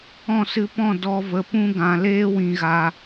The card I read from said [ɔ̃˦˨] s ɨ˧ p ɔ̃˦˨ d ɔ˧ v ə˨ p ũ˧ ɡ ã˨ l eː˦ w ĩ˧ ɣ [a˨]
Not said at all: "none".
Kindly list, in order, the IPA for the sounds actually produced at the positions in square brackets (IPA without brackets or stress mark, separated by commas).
ɔ̃˦˨, a˧